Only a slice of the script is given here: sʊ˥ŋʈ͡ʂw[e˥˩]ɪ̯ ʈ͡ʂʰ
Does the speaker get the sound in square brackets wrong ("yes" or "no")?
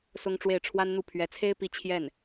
no